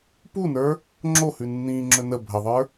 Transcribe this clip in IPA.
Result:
p u n ə˞ | ŋ͡ǁ o h ʉ nː ĩː ŋ͡ǁ ɵ n ə bʱ ə ðˤ ə˞

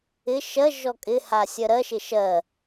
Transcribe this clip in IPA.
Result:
ɪ ʃ ɜ ʒ ɔ kʼ ɪ h a sʲ ɜ ɾ ɜ ʃ ɪ ʃ ɜ

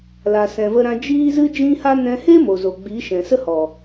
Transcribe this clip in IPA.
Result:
l a˨ s ɛ̃˨ v ə˧ ɾ ã˧ d͡ʒ iː˦ z ɨ˦ d͡ʒ ĩ˦ h a˦ n ɛ̃˧ h e˦ m o˨ z o˨ ɡ͡b iː˨˦ ʃ ɛ̃˨ s ə˦ h ɔ˨

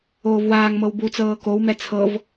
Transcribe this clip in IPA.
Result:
oː v w aː ŋ m ɤ w b u t͡s ɤː k o w m ɛ t͡sʰ ɤ v

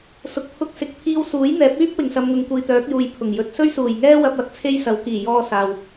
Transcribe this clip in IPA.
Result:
s ʊ˨ k̚ pʰ ʊ˧ k̚ s ɪ˨ k̚ pʰ iː˧ w s uː˨˥ j n̪ ɛː˨˥ p̚ yː˥ p̚ w ɪ˨˩ ŋ s ɐ˨ m ŋ ʊ˨ ŋ kʷ iː˨ t̪ œː˨˥ k̚ j uː˨ j pʰ ʊ˨˩ ŋ j ɵ˨ t̚ s ɵ˥ ɥ s uː˨˩ j ŋ ɛː˥ w ɐ˧ p̚ ɐ˨˥ t̚ t͡sʰ e˥ j s ɐ˨˧ w k iː˨˩ j ɔː˧ s aː˨ w

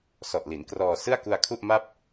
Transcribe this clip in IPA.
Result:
s ɔ˨˩ ʔ l i˩˦ n k r ɔː˧ s ɯ˥˩ a̯ k u˧ a̯ kʰ u˥˩ ʔ m a˥˩ p̚

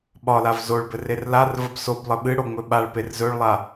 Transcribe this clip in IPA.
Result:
ɓ ɒ l a v z o ɭ b ɘ r e r l a r v ə b s o b lˠ ə ɓ ɨ ɽ o ŋ͡m ɵ ɓ a ɭ p e r z ɵ ɭ lˠ a

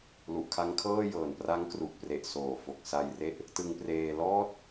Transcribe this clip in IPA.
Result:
l u˨˩ ʔ kʰ a˦˥ ŋ kʰ ɤː˥˩ j ɤː˨˩ n p r a˦˥ ŋ k r u˨˩ ʔ p r e˨˩ ʔ s oː˨˩ f o˨˩ k̚ s a˧ j r e˥˩ ʔ | t ɯ˧ ŋ p r eː˧ l ɔː˥˩ t̚

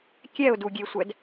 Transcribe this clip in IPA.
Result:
kʲ ɛ ʊ̯ d u ɡʲ e sʷ ɛ d

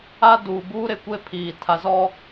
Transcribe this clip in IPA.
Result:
a˦ d uː˨ b uː˦ ɾ ɪ˨ kʷ e˦ pʰ iː˨ tʰ a˨ z ɔ˦

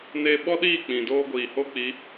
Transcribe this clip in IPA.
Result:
n e˨ ɓ ɔ˦ ɗ iː˦˨ k͡p ĩ˨ d oː˦ ɡʷ iː˨ h o˦ k͡p i˨˦

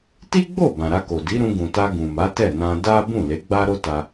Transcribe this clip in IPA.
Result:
t i˦ ɡ͡b o˦˨ b ã˨ ɾ a˧ k o˨ d i˨˦ ɾ ũ˧ ɡ ũ˨ t a˧ ɡ ũ˨ m a˨˦ t ɛ˦˨ n ã˧ d a˦ b ũ˦˨ l e˨˦ ɡ͡b a˦ ɾ o˦ t a˧

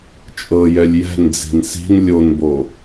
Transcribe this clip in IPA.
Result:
t͡ʃʼ ɤ j ɛ lʲ j ɛ̤ n d͡z i̤ n s i̤ n lʲ o n b o

